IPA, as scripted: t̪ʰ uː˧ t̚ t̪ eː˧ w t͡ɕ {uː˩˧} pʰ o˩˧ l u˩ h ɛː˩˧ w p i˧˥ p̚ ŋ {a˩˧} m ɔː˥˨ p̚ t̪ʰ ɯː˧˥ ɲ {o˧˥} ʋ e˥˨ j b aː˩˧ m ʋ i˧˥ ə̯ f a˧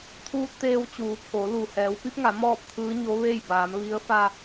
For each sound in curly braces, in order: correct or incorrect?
correct, correct, correct

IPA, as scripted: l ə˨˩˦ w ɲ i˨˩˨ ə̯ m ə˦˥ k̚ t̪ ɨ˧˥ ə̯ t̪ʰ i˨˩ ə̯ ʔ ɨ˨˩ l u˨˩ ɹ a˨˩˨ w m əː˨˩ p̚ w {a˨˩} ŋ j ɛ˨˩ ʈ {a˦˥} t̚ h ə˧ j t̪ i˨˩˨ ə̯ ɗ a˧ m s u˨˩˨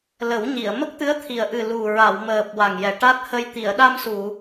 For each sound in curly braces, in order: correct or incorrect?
correct, correct

